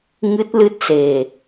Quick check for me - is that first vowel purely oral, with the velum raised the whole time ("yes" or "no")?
yes